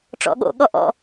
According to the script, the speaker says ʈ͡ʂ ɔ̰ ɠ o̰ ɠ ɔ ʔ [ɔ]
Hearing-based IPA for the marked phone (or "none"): ɔ̰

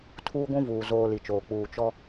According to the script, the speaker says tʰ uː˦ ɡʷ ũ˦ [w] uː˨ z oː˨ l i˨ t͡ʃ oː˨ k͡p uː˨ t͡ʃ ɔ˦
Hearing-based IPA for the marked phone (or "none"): v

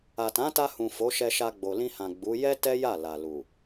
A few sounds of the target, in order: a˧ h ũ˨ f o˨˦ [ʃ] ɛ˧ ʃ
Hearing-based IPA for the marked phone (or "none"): ʃ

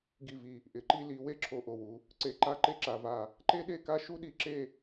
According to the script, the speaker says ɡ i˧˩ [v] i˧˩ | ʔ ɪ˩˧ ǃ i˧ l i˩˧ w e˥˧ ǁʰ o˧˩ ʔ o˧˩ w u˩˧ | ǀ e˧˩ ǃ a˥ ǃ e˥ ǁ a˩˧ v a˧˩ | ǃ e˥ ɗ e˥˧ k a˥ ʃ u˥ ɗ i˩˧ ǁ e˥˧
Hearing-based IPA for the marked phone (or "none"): v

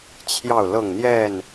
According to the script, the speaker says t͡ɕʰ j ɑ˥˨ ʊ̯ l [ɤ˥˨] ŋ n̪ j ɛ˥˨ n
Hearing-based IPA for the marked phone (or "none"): ɤ˥˨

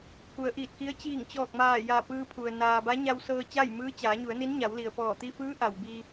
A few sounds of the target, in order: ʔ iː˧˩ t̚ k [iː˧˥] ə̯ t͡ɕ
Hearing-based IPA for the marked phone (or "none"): i˧˥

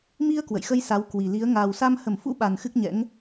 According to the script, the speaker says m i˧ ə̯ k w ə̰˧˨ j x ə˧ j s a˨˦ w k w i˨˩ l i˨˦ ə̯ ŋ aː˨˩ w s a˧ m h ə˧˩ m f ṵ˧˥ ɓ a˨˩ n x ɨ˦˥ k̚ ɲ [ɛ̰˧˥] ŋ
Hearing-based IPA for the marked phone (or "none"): ɛ̰˧˥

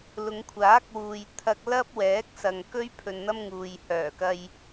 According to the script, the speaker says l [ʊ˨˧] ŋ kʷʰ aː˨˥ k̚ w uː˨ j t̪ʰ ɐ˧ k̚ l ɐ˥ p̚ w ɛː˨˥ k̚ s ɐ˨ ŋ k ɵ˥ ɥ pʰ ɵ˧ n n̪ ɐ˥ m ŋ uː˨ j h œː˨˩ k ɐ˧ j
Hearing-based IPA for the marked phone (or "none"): ʊ˨˧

